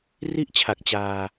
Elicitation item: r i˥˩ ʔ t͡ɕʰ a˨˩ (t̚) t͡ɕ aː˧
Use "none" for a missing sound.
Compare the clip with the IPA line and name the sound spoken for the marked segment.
k̚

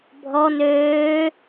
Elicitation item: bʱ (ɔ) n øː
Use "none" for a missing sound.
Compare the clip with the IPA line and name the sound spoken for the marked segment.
ɔ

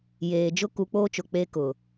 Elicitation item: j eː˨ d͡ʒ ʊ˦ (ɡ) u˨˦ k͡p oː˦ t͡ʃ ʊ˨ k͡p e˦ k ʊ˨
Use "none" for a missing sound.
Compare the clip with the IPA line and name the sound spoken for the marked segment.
k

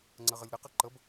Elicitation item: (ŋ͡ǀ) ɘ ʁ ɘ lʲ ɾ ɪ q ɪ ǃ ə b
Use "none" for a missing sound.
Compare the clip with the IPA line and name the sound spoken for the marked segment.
ŋ͡ǀ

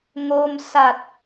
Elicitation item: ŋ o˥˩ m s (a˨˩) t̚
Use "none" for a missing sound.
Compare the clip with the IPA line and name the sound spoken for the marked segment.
a˨˩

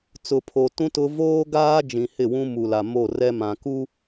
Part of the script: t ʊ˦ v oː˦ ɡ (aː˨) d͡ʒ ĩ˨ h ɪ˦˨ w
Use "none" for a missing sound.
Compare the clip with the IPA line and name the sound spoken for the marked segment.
aː˦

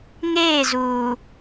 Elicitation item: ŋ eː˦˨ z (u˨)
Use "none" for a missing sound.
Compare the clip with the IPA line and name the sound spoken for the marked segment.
uː˨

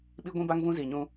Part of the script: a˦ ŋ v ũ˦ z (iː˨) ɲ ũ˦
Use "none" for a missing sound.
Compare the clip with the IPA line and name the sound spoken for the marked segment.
iː˨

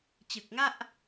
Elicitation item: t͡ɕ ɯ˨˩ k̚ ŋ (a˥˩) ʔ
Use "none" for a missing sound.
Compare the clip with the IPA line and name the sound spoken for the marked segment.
a˥˩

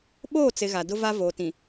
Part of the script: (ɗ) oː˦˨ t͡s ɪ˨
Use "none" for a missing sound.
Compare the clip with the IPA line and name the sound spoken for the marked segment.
ɓ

